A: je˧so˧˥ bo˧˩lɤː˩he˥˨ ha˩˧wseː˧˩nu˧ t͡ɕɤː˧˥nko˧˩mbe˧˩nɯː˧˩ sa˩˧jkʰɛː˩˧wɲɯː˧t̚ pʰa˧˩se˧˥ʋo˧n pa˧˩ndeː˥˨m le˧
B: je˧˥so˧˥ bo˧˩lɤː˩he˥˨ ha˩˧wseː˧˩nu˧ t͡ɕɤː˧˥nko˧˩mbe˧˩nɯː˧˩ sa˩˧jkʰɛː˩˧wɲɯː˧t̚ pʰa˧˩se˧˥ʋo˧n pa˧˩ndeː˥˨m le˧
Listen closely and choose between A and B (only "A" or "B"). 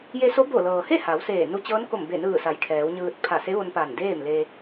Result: A